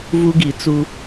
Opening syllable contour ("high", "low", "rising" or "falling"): high